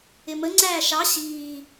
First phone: ɪ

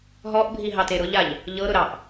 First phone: ɦ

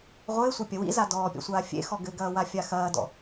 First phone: ʁʷ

